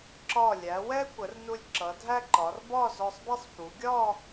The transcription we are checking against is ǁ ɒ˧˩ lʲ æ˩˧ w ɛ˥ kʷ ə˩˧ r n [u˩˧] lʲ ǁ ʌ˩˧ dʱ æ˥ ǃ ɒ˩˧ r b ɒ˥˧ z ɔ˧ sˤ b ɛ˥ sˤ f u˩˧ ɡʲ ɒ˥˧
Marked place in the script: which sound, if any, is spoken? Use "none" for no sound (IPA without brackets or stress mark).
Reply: u˧